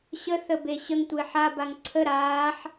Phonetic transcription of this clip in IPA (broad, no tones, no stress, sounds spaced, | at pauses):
ɕ ə θ ə b e ɕ ə ŋ tʷ e ħ a b a ŋ ǀʰ ə ɾ aː ħ